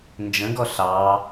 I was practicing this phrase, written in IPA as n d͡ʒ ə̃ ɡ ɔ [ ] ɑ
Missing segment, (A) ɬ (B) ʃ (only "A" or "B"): A